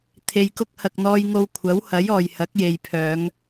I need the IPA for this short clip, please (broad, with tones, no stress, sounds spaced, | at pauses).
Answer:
t̪ʰ e˧ j k ʊ˥ k̚ h ɐ˨ k̚ n̪ ɔː˧ j ŋ o˧ w kʷʰ ɐ˨˥ w h ɐ˨˥ j ɔː˨ j h ɐ˨˥ k̚ j e˨ j pʰ œː˨˧ ŋ